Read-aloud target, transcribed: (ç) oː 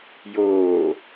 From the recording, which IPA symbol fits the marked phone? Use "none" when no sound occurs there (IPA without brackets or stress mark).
j